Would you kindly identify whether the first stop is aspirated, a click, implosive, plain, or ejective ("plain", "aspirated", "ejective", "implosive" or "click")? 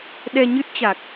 implosive